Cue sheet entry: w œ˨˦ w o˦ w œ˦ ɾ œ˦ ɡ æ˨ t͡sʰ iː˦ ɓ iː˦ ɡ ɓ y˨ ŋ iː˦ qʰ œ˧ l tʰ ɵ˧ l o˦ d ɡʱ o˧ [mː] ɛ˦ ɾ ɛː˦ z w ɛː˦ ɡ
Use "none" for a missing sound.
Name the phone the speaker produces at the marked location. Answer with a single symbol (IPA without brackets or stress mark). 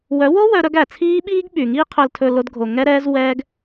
ŋ